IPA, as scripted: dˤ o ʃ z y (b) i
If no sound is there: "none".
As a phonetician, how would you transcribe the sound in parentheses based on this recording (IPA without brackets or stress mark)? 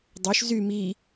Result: m